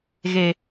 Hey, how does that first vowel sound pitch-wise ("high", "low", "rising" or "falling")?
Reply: low